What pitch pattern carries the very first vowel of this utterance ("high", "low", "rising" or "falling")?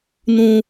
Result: low